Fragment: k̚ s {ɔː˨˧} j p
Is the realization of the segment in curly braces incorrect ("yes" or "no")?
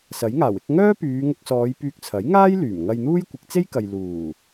no